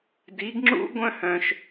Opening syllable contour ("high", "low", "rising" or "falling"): rising